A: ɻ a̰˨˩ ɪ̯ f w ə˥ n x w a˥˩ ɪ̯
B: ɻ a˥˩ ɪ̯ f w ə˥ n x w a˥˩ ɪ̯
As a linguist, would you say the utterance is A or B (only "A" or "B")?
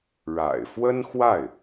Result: A